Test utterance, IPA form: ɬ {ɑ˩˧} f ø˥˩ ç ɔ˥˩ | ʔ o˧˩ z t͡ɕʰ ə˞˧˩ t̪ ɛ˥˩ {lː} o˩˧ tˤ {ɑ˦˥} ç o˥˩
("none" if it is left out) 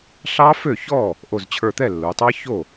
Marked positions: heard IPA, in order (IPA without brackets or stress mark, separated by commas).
ɑ˦˥, lː, ɑ˦˥